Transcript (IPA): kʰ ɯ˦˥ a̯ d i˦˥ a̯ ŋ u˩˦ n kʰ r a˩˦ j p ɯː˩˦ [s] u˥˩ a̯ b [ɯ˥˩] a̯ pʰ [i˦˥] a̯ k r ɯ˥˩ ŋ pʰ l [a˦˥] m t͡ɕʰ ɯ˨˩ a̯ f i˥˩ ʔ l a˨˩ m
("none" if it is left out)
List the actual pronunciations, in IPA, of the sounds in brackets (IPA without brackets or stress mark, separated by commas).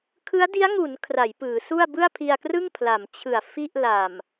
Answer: s, ɯ˥˩, i˧, a˩˦